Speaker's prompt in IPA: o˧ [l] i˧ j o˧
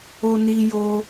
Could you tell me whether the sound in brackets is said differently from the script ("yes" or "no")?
yes